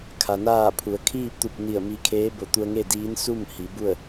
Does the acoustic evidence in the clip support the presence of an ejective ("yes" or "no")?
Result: no